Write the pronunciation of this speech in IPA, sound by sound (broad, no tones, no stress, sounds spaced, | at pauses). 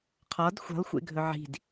qʰ ɒ d xʷ e̤ lˠ xʷ ḛ ɡʱ ɵ ʕ i̤ d